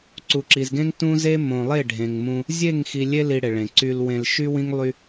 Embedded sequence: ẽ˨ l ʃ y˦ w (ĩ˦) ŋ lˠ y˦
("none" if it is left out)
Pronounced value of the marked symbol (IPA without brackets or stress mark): ĩ˦